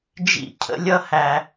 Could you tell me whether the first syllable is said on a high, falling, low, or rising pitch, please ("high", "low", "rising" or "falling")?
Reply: falling